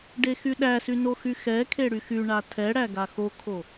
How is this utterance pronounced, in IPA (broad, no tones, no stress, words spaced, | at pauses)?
ɖexyɗæsy noxyxɛkʰe ɽyxyɳa tʰɛɽæ ɡaxokʰo